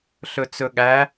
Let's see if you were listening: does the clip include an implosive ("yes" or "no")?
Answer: yes